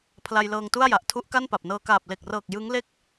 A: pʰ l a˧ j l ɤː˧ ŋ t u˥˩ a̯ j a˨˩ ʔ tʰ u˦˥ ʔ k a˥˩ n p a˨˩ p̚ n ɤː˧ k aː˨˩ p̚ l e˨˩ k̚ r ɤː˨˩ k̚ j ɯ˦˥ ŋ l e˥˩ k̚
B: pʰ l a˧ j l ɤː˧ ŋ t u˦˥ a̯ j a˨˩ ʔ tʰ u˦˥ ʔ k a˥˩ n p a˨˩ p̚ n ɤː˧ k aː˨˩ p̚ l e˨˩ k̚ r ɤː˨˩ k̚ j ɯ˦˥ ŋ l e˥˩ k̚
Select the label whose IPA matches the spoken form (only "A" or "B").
A